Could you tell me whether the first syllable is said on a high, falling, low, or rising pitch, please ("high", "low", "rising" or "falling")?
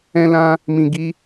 high